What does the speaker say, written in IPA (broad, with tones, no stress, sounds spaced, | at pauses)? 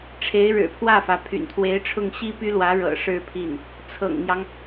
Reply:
ʈ͡ʂʰ e˧˥ ɪ̯ ɻ ɻ̩˨˩ pʰ w ä˥˩ f ä˩ pʰ y̰˨˩ n t̪ʰ w e˧˥ ɪ̯ ʈ͡ʂʰ ʊ˥˩ ŋ ɕ i˥ p y˥ l w ä˧˥ ɻ ɤ̰˨˩ ʂ ɻ̩˥˧ pʰ i˥˩ n | t͡sʰ ɤ̰˨˩ ŋ n̪ j ɑ˦ ŋ